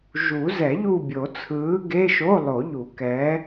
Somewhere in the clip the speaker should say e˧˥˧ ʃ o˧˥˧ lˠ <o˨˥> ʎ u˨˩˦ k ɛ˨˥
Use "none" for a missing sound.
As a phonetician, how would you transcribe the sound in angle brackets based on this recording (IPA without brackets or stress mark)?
o˨˩˦